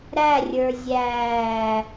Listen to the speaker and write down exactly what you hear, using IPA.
ɾ æ rʲ ə˞ zʲ æː

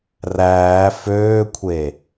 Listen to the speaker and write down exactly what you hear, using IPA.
r æː f øː kʷʰ e

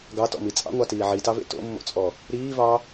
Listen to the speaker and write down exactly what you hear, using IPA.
ɡ ɑ t ɔ̰ m i t͡sʼ ɑ̰ ŋʷ ɑ t iː ʕ i t ɑ v ḛ t o̰ mː o̰ t͡sʼ ɔ | ɾ iː v ɑ

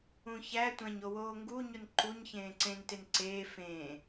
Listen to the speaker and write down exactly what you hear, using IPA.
ũ ç æ tʷ æ̃ ɲ o w oː ŋ ɡ u ɲ u n ǃ u ɲ ç ẽː ǀ ẽ n t e n ǀ eː f ẽː

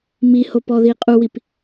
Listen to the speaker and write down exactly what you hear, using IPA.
m i h o p ɔ ð i qʼ u w i p

